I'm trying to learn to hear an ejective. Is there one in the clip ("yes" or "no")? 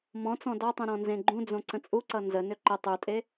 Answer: yes